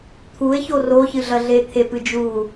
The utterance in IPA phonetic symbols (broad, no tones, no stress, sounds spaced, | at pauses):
t̪ʰ u e̯ ç o r o ç ɨ ɮ ɐ ɮ e t̪ʰ e p ɨ d͡ʒ u